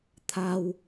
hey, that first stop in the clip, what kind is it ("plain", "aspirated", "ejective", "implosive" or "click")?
aspirated